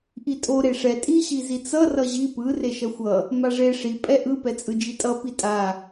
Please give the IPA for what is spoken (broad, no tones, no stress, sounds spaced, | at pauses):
ʔ i tʼ o ɾ e ʂ ɛ tʼ i ɕ i z i t͡s ʌ r ʌ ʑ i p ɯ r e ʃ ʌ xʷ ʌ | m a ʐ e ʂ i pʼ ɛ ʔ ɯ p ɛ t͡sʼ ɯ d͡ʒ i tʼ ʌ p i tʼ a